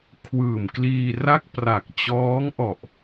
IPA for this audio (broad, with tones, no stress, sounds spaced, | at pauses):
kʰ w ɯː˨˩ m k l iː˧ r a˥˩ k̚ p r a˨˩ k̚ t͡ɕ ɔː˦˥ ŋ ʔ ɔ˨˩ ʔ